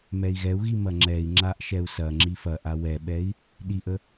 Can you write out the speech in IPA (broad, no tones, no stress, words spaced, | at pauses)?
mɛi̯ɣɛu̯ɣi mɐŋ͡ǁɛi̯ŋ͡ǁaʔ ʃɛu̯sɐŋ͡ǁi fɐʔa wɛɓɛi̯ | ɗiʔə